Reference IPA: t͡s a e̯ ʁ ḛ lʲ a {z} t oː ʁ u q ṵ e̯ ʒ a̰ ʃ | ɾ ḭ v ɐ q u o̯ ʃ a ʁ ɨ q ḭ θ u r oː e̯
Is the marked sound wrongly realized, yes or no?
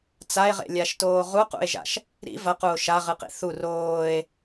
yes